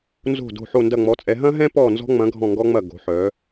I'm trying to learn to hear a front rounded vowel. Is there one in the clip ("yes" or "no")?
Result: yes